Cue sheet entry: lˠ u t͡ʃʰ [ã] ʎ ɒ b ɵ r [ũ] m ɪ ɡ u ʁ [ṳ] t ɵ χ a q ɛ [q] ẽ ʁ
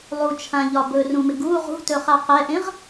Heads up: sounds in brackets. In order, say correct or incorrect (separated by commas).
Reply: correct, correct, correct, incorrect